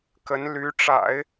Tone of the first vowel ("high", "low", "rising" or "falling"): rising